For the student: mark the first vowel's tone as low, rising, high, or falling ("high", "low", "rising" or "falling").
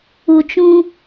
low